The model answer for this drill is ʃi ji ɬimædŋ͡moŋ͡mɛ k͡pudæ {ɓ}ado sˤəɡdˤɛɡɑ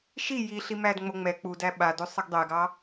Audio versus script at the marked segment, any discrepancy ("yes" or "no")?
no